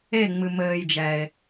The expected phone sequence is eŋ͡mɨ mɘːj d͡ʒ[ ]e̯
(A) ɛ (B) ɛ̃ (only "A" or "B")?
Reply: A